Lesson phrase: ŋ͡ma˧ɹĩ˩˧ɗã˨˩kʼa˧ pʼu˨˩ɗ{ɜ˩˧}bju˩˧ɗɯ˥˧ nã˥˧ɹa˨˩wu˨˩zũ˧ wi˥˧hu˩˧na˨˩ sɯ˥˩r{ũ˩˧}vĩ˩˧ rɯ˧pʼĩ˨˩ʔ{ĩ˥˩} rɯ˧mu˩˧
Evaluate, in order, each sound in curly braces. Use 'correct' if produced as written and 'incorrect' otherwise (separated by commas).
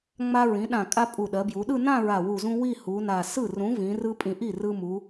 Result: correct, incorrect, incorrect